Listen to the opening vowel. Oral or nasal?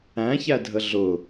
nasal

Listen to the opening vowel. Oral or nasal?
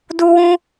oral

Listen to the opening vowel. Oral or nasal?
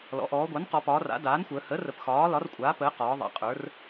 oral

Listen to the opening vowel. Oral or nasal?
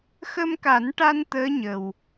oral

